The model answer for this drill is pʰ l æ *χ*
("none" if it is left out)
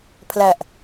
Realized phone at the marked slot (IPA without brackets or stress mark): ʔ